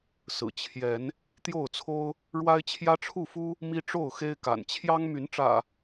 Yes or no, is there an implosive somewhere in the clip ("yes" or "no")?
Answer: no